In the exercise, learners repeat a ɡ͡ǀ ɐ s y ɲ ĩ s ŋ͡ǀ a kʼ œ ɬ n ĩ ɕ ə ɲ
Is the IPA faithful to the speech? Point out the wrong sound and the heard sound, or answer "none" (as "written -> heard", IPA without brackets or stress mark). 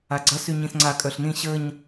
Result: none